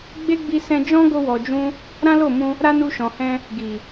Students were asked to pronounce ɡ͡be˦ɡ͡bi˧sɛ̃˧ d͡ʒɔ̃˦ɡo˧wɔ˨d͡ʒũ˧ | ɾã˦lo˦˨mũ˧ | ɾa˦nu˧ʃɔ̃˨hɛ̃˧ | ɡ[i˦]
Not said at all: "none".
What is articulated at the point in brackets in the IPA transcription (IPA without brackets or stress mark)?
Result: i˨